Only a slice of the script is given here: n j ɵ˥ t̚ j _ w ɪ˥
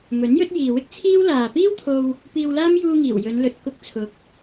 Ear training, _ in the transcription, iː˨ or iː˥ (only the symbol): iː˨